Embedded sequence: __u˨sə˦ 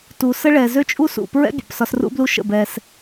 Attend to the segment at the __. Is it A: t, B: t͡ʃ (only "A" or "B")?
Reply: A